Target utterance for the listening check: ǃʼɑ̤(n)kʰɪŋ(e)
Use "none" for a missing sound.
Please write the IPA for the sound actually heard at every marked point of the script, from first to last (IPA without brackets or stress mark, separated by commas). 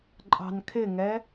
n, ɛ